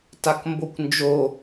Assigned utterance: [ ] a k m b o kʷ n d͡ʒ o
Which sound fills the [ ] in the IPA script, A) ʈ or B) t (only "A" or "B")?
B